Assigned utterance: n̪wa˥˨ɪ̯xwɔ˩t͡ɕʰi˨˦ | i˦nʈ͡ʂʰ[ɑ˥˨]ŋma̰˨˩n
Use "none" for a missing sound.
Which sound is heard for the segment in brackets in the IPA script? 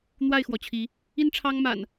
ɑ˦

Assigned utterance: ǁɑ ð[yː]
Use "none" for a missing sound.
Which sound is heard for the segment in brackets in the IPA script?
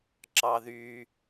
yː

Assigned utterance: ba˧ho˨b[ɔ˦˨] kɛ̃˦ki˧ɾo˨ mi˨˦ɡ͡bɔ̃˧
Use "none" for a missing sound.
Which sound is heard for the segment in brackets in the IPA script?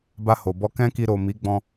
ɔ˧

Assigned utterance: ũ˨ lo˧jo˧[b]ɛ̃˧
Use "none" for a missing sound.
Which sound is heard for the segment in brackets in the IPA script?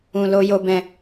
b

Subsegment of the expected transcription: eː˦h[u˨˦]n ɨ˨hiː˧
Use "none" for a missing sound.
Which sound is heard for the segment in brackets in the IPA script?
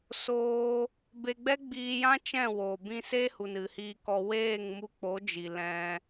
u˨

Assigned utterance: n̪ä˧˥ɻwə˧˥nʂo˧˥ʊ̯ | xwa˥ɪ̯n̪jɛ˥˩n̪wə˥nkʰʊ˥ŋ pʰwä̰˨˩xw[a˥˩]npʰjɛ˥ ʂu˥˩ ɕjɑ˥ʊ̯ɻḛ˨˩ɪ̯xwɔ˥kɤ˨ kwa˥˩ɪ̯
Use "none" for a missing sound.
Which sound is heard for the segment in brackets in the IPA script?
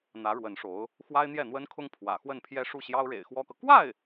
ə˥˩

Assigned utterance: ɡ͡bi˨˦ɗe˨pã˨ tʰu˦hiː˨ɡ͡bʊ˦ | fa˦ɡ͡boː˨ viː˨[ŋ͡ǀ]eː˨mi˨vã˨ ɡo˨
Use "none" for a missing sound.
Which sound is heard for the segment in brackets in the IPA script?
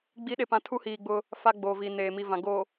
n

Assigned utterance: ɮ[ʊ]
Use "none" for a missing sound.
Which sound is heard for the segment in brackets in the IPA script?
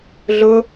ʊ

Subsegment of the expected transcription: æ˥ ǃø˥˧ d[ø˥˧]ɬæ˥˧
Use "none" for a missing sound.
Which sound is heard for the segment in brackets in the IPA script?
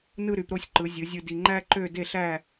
e˥˧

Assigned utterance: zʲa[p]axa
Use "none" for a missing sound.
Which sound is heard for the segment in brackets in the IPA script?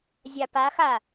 p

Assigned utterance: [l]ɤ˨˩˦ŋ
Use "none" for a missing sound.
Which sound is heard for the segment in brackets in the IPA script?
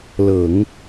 l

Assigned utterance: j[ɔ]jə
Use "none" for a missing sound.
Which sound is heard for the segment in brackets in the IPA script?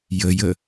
ə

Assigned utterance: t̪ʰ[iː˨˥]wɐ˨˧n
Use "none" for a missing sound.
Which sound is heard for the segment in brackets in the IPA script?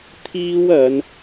iː˥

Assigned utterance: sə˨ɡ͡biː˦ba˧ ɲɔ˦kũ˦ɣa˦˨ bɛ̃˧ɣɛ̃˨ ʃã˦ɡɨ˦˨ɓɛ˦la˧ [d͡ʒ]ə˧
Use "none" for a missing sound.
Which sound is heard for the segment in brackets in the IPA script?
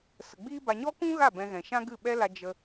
d͡ʒ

